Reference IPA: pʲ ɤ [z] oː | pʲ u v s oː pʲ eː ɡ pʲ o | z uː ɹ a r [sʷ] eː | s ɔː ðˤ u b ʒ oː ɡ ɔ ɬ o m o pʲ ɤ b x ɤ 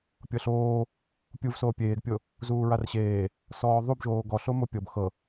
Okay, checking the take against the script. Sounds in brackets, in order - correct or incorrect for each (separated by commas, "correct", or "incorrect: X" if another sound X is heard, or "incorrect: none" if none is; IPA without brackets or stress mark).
incorrect: ɬ, incorrect: ɕ